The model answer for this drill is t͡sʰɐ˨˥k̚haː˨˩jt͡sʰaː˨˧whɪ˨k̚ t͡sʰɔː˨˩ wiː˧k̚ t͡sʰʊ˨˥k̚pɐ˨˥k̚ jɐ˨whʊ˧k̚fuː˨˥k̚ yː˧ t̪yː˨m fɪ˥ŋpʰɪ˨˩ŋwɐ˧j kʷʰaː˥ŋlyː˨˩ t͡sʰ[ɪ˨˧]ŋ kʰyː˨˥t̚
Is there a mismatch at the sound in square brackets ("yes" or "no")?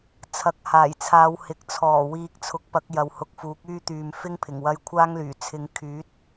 no